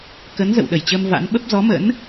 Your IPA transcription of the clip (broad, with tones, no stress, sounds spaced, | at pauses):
k ə˨˦ n z ə̰˧˨ w ɗ ə˧˩ j t͡ɕ əː˧ m v a̰˧˥ n ɓ ə˦˥ p̚ z ɔ˨˦ m ə̰˧˥ n